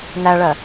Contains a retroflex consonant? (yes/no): yes